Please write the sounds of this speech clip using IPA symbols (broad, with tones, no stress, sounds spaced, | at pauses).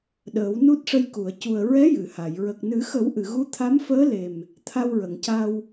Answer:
ɗ əː˨˩˦ w n u˦˥ t̚ ʂ ə˧ j k u˨˩˨ ə̯ c u˨˩ ə̯ ɹ ɛ˧˥ j ɨ˨˩˨ h a˨˩˨ j ɹ ə˨˩ k̚ n ɨ˨˩˦ x ə˨˩˦ w ʔ ɨ˨˩˨ ɣ u˧˥ t̪ʰ a˧˥ m f əː˧˥ l e˨˩ m | t̪ʰ a˧ w ɹ ə˨˩˨ ŋ c a˧ w